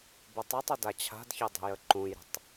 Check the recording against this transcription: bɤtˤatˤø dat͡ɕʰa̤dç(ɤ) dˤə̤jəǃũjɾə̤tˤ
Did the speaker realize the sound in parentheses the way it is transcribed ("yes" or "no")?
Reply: yes